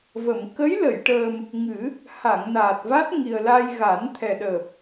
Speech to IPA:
v ə˨˩˨ m k ə˧˥ j l ə˨˩˨ j ʈ əː˨˩ m | ŋ ɨ˨˩˦ | h a˨˩˨ ŋ n aː˨˩ t̚ v a˦˥ t̚ ŋ i˨˩ ə̯ l a˧ j ɣ a˨˩˦ n t̪ʰ ɛ˨˩ ɗ əː˨˩ p̚

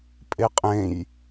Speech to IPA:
pʼ e qʼ ẽ j

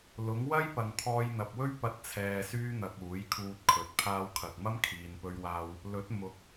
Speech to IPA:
l ʊ˨˥ ŋ w ɐ˥ j p ɐ˨ ŋ t̪ʰ ɔː˧ j n̪ ɐ˨ p̚ w ɵ˥ ɥ p ɐ˧ t̚ t͡sʰ ɛː˧ s yː˥ n̪ ɐ˧ k̚ uː˨˥ j kʰ uː˧ t̚ kʰ ɵ˨˥ t̚ pʰ aː˧ w kʰ ɐ˨ k̚ m ɐ˥ m kʰ iː˨ n p ɵ˧ ɥ w aː˧ w | l ɵ˨˥ t̚ m ʊ˨˥ k̚

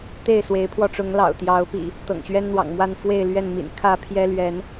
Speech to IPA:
t̪ e˥˨ ɪ̯ s w e˨˦ ɪ̯ pʰ w ɔ˧ ʈ͡ʂ ʊ˨˦ ŋ l ɑ̰˨˩ ʊ̯ t̪ j ɑ˨˦ ʊ̯ p ḭ˨˩ | t̪ ɤ̰˨˩ ŋ ɕ ɥ ɛ˦ n n̪ w ɑ̰˨˩ ŋ m w a˥˨ n f w e˥˨ ɪ̯ l ɥ ɛ˥˨ n m ḭ˨˩ n kʰ ä˥˨ pʰ j ɛ˦ l ɥ ɛ˨˦ n

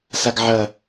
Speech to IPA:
s a ɡ ʕ ɐ

